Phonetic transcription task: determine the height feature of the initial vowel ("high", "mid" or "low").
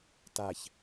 low